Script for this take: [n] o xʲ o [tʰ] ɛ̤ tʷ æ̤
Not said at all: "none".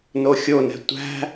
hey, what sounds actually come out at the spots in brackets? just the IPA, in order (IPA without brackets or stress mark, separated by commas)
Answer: n, n